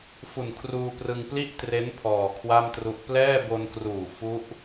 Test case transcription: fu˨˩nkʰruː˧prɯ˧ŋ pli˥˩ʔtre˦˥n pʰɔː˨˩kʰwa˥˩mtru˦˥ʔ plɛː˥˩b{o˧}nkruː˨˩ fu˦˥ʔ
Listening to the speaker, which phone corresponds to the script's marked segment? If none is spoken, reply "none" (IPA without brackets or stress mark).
o˧